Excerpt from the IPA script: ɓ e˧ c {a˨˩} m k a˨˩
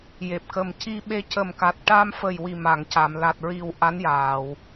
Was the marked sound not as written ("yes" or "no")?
yes